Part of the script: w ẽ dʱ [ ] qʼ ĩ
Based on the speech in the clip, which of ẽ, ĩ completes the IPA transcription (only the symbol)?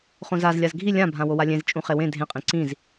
ẽ